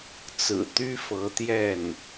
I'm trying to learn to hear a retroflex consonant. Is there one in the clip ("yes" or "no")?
no